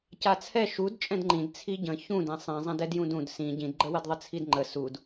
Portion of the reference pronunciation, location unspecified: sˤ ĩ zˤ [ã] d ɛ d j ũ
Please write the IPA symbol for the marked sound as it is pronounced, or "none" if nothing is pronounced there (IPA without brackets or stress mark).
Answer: ã